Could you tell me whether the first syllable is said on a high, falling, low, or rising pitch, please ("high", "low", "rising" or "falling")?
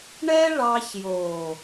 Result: high